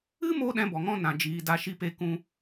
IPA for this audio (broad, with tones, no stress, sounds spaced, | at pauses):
ɨ˦ m o˧ ɗ ɛ̃˦ b ɔ˨ ŋ ɔ̃˦ n ã˨ d͡ʒ iː˨ d a˧ ʃ i˧ p e˧ k ũ˧